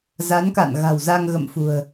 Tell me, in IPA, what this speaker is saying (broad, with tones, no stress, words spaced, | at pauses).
za˨˦nka̰˧˨nɣa̤˨˩w za˧ŋɣə̰˧˨mfṳ˨˩ə̯